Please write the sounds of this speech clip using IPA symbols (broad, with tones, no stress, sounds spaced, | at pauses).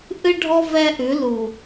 ʔ ɨ˦ ɖʱ ɔ˦ v ɛ˦ ʔ ʉ˨˦ l u˨